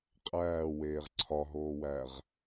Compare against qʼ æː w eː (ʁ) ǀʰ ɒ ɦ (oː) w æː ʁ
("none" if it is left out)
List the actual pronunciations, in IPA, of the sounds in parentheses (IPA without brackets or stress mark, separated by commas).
ʁ, oː